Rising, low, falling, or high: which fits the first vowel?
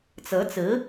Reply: rising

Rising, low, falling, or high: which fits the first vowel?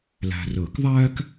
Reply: low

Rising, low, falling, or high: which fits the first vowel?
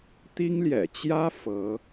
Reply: high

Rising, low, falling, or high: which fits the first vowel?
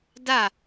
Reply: falling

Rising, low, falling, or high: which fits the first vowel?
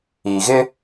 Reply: low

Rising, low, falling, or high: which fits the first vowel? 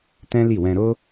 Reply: high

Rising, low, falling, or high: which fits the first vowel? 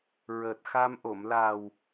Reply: low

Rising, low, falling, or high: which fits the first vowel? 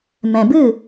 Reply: low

